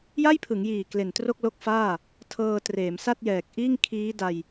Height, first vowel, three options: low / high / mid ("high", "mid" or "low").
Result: low